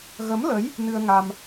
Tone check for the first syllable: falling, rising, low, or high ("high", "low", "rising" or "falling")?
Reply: rising